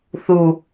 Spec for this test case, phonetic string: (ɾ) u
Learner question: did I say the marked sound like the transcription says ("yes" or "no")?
no